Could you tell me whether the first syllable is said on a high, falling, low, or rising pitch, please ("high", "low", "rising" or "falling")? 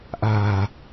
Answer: low